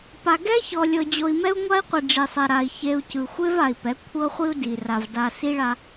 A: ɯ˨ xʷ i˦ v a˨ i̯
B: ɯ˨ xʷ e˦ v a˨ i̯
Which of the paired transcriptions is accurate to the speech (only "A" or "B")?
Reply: B